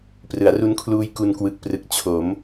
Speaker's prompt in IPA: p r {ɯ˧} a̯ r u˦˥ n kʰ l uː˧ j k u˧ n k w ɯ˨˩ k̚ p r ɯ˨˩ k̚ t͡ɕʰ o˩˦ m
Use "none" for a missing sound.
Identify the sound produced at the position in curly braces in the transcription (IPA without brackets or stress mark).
ɯ˩˦